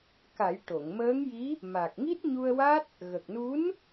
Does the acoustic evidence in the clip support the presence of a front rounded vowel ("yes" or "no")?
no